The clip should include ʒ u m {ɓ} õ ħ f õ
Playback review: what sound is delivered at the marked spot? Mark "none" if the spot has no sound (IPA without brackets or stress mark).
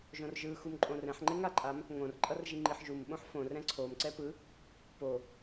ɓ